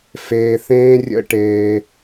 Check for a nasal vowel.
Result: present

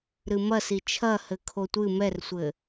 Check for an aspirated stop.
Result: present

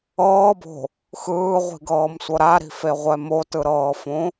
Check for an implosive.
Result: absent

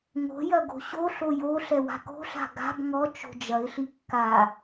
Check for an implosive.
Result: absent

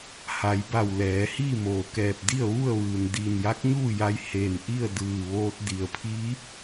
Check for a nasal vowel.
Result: absent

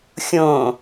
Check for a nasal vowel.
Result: present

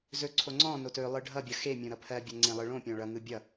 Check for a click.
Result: present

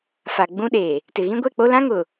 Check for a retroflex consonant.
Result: absent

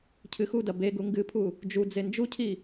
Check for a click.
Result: absent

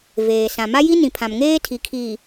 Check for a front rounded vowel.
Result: absent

